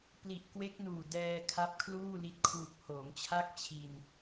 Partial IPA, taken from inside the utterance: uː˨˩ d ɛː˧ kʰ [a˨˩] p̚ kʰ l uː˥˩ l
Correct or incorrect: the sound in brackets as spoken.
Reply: incorrect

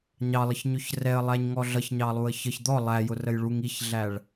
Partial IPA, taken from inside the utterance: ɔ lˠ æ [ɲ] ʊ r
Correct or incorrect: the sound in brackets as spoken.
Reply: incorrect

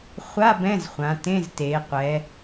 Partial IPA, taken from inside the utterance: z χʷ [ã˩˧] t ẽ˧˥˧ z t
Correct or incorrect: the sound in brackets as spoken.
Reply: correct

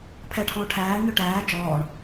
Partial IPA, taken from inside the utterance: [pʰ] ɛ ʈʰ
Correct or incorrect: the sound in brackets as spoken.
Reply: correct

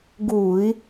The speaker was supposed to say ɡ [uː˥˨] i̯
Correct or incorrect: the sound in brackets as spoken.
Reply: incorrect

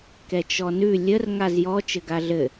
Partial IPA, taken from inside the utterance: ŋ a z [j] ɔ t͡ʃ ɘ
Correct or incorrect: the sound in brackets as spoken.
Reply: correct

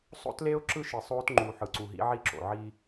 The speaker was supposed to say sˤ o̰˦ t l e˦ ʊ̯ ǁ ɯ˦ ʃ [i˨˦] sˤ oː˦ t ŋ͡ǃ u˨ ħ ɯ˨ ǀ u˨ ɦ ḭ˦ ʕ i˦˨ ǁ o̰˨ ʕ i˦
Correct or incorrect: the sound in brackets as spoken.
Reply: incorrect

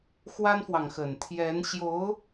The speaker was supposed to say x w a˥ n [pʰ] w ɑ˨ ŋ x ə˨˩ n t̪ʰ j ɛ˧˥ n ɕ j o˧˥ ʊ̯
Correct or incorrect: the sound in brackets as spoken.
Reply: incorrect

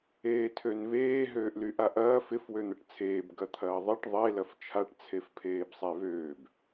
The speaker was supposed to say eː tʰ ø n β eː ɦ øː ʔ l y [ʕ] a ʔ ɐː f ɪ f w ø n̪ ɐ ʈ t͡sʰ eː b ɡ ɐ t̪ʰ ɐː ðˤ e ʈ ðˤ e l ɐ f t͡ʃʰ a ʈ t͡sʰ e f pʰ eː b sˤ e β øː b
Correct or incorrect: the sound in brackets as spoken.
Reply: incorrect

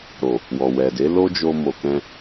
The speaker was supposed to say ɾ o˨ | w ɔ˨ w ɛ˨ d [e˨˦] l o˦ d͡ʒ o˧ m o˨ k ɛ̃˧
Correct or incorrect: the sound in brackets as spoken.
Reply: correct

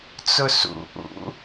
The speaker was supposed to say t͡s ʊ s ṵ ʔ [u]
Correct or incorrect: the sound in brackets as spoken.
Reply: incorrect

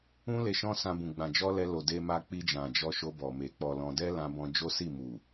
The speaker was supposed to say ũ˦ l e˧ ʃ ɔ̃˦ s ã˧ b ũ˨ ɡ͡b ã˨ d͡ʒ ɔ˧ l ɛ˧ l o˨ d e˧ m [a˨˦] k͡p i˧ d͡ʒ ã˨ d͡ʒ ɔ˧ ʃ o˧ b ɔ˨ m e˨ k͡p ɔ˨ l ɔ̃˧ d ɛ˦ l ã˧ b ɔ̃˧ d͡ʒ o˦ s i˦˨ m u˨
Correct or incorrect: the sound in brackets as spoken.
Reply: incorrect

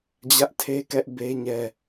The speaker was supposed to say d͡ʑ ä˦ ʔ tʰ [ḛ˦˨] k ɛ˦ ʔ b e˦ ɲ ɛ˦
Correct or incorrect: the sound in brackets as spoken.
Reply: incorrect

